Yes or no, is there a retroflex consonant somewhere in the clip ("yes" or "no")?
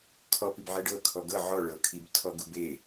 yes